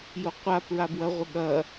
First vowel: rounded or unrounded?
rounded